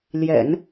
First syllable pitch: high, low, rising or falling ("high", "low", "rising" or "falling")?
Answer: low